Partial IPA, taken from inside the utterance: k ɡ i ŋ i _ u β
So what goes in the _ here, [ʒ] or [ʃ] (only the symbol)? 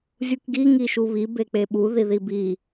ʃ